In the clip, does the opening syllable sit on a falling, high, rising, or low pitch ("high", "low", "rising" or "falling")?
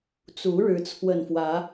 rising